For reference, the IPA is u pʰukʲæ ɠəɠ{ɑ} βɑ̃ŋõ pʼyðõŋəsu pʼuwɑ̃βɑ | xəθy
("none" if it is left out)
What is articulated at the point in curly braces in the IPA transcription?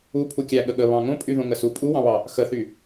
ə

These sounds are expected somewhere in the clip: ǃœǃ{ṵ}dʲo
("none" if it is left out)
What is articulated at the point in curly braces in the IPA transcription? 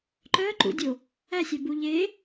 ṵ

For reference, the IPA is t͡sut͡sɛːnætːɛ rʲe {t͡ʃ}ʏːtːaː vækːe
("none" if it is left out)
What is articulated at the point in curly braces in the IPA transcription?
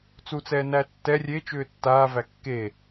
t͡ʃ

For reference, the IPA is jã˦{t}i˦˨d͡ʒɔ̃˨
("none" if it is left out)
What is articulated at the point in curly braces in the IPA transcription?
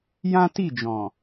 t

